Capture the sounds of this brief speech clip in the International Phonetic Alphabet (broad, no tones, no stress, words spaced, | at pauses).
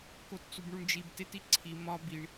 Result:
kott͡subɳuɳd͡ʒib tetiǀʰi mɒ biɳ